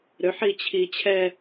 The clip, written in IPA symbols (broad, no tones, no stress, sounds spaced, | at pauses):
ɾ ø ħ i t͡ɕʰ i t͡ɕʰ ɛ